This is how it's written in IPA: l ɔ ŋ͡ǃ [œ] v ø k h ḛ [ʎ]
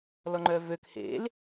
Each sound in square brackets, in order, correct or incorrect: correct, incorrect

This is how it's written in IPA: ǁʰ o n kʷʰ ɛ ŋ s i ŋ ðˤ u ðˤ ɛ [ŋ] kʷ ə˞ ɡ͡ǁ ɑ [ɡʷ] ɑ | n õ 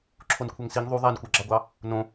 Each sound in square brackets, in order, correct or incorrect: incorrect, correct

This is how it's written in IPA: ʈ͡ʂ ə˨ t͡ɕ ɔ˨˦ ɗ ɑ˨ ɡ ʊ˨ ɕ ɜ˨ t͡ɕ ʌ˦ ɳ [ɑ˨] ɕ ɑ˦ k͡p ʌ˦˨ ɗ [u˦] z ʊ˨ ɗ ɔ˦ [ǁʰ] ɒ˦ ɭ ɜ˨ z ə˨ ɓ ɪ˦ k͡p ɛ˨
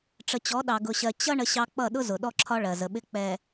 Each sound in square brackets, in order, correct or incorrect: incorrect, incorrect, correct

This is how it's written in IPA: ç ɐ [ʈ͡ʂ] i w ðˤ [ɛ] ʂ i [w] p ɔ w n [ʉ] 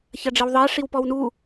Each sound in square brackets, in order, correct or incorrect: incorrect, correct, correct, incorrect

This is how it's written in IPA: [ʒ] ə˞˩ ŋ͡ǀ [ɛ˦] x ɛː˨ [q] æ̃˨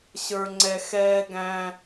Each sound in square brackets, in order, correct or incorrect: incorrect, incorrect, incorrect

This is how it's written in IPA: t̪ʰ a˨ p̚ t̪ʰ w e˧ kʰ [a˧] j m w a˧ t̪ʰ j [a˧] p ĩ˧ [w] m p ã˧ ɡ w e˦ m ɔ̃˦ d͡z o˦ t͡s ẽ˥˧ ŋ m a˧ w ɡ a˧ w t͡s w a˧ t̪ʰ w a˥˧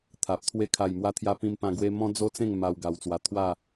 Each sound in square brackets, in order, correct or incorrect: incorrect, correct, incorrect

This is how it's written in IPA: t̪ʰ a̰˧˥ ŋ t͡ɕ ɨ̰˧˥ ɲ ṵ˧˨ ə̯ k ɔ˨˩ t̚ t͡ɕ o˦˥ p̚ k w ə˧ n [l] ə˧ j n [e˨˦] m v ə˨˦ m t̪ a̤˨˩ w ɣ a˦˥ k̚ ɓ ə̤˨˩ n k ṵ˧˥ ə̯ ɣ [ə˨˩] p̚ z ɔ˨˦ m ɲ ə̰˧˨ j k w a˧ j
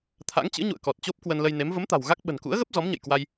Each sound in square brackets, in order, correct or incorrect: correct, correct, incorrect

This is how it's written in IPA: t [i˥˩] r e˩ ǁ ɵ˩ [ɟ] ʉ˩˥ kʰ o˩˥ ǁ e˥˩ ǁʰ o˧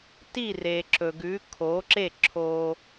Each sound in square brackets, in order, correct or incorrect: correct, incorrect

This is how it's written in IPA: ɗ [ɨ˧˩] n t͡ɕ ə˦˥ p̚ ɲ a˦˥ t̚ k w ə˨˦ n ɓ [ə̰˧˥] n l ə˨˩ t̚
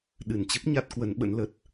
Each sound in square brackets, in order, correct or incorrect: correct, correct

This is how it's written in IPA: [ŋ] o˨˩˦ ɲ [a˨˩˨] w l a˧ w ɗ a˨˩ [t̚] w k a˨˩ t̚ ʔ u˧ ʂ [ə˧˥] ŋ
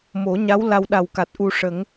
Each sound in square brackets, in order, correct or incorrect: incorrect, incorrect, incorrect, incorrect

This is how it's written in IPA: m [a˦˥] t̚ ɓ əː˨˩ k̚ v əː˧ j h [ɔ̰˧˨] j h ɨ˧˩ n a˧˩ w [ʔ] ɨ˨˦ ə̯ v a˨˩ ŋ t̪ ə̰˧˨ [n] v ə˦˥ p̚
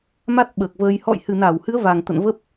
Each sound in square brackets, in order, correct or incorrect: correct, correct, incorrect, correct

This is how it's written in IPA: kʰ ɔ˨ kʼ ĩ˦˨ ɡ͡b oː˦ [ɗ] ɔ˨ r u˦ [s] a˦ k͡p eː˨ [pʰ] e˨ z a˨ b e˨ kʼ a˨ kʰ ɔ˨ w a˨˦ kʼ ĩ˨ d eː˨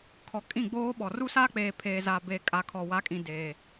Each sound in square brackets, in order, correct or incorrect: incorrect, correct, correct

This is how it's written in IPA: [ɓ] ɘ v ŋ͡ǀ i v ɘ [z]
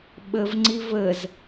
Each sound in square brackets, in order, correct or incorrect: correct, correct

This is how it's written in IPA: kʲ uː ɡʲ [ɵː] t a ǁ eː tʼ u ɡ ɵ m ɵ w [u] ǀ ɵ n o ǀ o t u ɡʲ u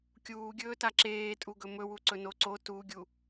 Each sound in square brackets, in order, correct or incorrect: correct, correct

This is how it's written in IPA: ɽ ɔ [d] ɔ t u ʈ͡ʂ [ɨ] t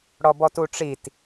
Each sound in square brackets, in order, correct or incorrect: incorrect, incorrect

